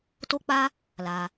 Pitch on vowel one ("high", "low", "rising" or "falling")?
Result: high